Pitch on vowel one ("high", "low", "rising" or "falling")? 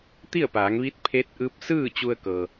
falling